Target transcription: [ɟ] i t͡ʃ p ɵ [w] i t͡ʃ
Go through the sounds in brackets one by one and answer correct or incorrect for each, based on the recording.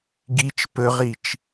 incorrect, incorrect

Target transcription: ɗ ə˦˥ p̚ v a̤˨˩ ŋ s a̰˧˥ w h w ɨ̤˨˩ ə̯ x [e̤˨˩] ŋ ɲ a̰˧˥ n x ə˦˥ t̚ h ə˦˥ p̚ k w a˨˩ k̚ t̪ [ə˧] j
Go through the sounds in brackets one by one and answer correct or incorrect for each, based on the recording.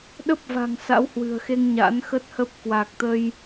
incorrect, correct

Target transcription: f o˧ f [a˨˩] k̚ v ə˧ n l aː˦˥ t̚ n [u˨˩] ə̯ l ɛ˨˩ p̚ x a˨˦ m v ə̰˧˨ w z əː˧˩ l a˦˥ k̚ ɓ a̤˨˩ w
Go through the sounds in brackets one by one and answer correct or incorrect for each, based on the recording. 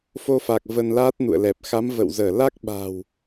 correct, incorrect

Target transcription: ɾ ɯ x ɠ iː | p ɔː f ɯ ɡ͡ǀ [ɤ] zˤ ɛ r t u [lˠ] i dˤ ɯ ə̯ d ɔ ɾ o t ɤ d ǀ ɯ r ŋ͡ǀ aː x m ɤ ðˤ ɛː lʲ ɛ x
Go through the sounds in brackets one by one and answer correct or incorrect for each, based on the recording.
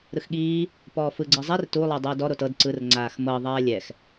incorrect, correct

